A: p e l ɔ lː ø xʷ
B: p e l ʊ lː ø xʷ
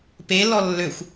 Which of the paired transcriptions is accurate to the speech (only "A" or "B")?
A